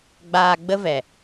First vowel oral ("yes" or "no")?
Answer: yes